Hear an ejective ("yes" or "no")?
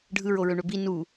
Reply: no